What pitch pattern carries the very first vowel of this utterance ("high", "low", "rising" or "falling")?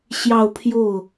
falling